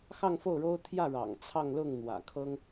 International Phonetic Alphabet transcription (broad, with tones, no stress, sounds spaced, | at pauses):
x ɑ˥˧ ŋ f o˥˩ ʊ̯ ɻ o˥ ʊ̯ t̪ʰ j ä˥˩ ɻ ɑ̰˨˩ ŋ t͡sʰ ɑ˥˧ ŋ l ʊ˥˩ ŋ n̪ w ä̰˨˩ kʰ ɤ˥ ŋ